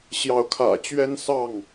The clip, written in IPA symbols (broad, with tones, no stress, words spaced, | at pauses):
ɕjɑ˨˦ʊ̯kʰä̰˨˩ t͡ɕɥɛ˦nsɑ˥˨ŋ